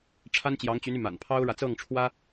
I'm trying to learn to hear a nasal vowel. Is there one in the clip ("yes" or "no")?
no